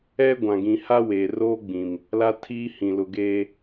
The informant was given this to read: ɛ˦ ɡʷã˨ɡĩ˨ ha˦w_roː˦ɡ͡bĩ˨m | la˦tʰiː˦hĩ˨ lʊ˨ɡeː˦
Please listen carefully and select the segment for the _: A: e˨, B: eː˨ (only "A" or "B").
B